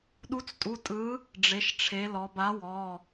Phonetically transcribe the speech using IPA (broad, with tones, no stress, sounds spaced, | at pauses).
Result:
ɗ u˨˥ t͡s tʼ u˩˧˩ tʼ ɯ˨˥ | ɖ͡ʐ e˩˧ ʃ ʈ͡ʂʰ e˩˧ l ɔ˩˧ b a˨˥ w ɔ˩˧˩